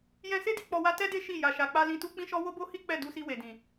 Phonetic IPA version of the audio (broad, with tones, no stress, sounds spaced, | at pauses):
j ɛ̃˧ s e˦ d i˦ k͡p ɔ˧ w a˦ t ɛ˦ d e˦ ʃ i˦˨ j a˨ ʃ a˨ k͡p a˧ l ĩ˧ t u˦ k͡p ĩ˦ ʃ ɔ˦ w o˦ b o˦ h i˦ k͡p ɛ˦˨ d u˧ s i˧ w e˨ d ĩ˨